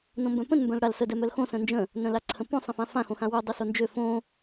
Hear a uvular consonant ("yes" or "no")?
no